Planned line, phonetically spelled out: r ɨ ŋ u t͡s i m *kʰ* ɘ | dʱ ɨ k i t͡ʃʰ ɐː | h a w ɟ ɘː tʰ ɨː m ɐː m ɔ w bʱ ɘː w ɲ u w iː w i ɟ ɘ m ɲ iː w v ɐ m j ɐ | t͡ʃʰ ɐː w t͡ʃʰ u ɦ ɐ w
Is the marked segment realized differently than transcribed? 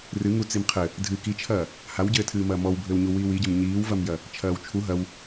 yes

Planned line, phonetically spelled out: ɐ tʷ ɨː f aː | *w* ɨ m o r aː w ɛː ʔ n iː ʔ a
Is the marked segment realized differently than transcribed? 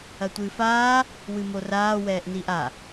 no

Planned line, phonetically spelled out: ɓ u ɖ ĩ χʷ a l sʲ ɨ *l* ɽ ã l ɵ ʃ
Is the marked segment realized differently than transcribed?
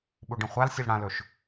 no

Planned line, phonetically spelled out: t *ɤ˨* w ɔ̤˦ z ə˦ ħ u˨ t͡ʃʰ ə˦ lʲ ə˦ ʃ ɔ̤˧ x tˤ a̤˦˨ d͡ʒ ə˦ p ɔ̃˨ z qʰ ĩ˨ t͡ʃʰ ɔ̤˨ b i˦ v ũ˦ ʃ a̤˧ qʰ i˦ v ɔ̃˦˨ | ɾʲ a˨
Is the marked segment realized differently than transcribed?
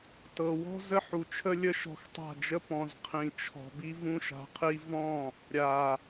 no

